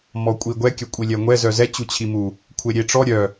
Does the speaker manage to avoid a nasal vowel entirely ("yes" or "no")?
yes